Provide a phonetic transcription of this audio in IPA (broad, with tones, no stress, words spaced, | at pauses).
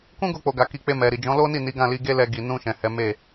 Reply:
kũ˦ɡo˧k͡po˨ɡa˨ ki˧ k͡pe˧ mɛ˨ ɾi˨d͡ʒɔ̃˨˦lo˦ni˦˨ ni˨˦ɡã˦˨li˧ ɡe˦lɛ˧ ɡi˨nũ˧ʃɛ̃˨ hɛ˨˦me˦˨